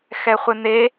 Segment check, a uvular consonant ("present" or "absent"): present